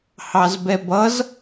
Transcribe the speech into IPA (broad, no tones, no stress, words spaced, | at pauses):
hɑzbɛbʌz